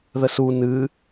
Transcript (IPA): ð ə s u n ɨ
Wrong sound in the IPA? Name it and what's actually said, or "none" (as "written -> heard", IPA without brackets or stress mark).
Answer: none